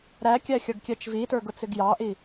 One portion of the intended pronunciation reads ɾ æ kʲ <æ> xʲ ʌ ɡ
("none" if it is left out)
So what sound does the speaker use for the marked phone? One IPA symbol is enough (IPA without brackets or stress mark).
æ